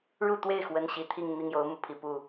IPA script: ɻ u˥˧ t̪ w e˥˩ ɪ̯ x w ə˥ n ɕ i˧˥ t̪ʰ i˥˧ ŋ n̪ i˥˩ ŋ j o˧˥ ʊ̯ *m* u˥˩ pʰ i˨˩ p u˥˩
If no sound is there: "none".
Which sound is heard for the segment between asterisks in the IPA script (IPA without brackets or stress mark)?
m